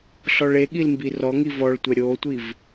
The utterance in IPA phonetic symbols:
ɬɔɭeɠil mbirɔŋi vɔɭtʷɛ ɾʲotʷiv

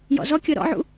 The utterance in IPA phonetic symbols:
jɔ̰zɔkʲɤ ɾɔ̰ʕṵ

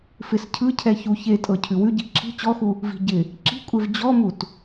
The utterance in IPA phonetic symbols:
fɪs cʰɯcʰɛ çu çetʼɤ cʰʉwʉɟi ǁʰi̤ t͡ɕɔxu | vi̤ ɟɪ | ǁi̤kʷʼev d͡ʑɔmut

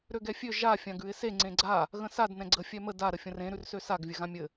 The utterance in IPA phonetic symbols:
ɾøɡɛfʲø ʒa fʲãɡʉɪ̯se ŋ͡ǀẽɡ͡ǀa | ɣə̃sad nɛ̃ɡ͡ǀə fʲɛmə da ɾəfʲə̃rẽ ɾʉrsøsaɡ vʲɘɣãmʲɘ

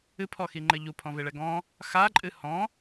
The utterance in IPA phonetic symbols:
ɨpʰɔxiŋ͡ǃɘ ʎupʰɔ̃veɭɛ ɡɔ̃ | xaǃʼɨ hɔ̃

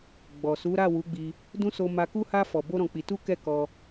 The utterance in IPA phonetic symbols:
ɡ͡bɔ˨ su˨˦ɾa˦˨wu˨˦ɡ͡bi˧ | dũ˦so˧ ma˧ku˦ha˦ fɔ˧bo˦ɾɔ̃˧k͡pi˧ tu˦kɛ˦˨kɔ˧

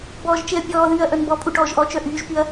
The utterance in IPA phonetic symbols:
bɔːʒt͡ʃeɐ̯pʲɔːðyːɐ̯ ʔœnbɔpʼu ʈɔːʒʔɔt͡ʃœ ʔyːʒpyɐ̯

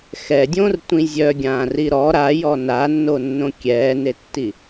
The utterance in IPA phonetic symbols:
xɛdʲõrtʷĩ zʲœɡʲãːri ɾɔ ɾajɔ nanːonːõ kʲɛːnetːi

